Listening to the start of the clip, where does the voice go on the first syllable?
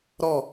falling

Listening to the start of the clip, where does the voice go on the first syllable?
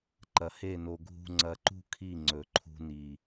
low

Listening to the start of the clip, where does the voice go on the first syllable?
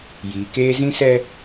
low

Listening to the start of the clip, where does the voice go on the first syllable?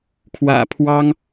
low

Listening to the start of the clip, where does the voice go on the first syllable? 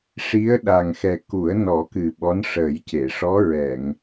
rising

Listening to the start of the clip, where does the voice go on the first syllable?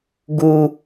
high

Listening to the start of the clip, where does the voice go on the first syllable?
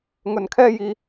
low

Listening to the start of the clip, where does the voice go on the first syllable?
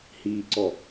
low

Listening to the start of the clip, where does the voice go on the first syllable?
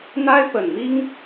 high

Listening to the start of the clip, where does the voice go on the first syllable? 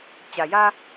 low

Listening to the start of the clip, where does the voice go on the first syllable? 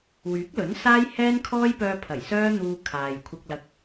rising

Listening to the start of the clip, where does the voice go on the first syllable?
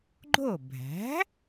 falling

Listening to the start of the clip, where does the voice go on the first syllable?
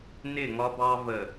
falling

